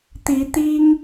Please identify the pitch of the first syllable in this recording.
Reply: rising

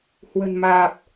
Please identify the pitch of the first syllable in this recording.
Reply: low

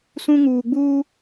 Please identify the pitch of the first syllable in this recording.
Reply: high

